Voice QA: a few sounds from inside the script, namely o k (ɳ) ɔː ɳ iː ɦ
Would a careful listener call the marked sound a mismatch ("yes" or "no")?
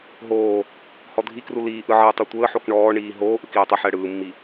no